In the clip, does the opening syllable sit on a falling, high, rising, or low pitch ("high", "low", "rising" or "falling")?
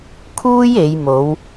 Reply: high